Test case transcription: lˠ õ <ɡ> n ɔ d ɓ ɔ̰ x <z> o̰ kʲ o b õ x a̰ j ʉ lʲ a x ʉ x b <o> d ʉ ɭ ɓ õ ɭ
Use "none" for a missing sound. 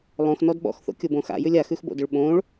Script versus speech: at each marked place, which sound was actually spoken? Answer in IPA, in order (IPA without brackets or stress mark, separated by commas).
x, θ, o̰